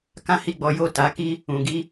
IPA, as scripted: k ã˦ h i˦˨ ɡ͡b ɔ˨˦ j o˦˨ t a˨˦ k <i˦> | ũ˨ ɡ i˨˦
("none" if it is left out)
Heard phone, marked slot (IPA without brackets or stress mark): i˦